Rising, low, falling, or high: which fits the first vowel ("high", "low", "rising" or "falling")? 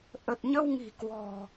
low